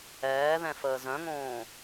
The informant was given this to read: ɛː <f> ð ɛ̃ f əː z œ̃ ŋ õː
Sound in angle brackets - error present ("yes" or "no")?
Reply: yes